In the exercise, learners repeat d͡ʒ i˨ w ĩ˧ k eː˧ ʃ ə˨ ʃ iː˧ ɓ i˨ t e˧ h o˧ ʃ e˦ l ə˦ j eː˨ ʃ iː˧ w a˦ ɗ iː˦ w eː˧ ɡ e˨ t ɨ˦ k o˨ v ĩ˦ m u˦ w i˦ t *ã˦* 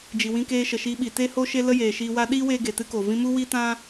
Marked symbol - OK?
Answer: yes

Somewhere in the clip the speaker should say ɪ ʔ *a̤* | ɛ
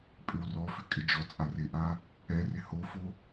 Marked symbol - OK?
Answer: no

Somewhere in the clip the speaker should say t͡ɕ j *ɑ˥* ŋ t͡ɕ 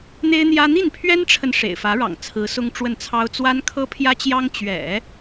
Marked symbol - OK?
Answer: yes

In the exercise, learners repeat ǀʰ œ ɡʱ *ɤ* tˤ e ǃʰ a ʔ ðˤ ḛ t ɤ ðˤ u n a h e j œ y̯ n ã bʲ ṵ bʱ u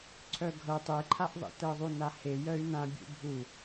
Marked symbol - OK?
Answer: yes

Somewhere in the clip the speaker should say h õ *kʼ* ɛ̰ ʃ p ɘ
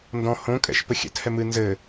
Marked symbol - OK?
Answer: yes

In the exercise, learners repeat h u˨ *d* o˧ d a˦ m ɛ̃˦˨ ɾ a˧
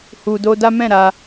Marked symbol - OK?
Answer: yes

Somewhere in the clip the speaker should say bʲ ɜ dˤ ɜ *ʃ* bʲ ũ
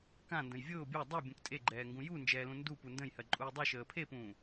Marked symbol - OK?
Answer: no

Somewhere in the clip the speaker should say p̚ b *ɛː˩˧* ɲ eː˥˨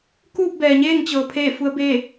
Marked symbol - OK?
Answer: no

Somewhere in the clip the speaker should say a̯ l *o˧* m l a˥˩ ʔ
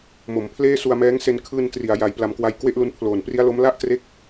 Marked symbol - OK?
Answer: no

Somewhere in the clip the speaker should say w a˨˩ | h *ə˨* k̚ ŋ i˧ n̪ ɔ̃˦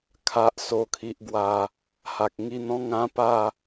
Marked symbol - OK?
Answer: no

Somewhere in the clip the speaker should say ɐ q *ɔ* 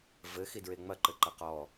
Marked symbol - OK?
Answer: yes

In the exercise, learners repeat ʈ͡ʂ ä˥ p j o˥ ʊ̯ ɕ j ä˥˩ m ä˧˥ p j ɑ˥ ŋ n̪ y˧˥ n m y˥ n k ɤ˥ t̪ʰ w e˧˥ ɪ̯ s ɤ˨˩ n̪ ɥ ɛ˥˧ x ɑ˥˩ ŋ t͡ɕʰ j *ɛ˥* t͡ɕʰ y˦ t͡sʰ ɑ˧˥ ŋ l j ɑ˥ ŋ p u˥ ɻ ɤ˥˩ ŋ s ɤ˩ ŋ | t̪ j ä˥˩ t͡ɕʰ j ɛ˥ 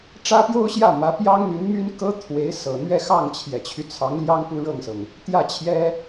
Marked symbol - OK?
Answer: no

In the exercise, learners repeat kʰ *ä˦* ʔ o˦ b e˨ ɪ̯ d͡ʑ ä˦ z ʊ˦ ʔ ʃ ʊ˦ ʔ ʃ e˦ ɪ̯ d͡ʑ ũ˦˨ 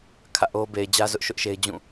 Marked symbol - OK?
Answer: no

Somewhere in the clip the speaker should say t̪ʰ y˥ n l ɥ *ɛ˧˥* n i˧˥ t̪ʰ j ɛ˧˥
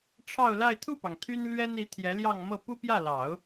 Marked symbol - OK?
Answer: no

